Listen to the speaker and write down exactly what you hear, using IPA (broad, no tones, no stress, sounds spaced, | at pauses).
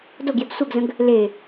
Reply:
d o ɡ j ɛ ɡ sʷ ɛ ɡ z ə̃ ɡ | l e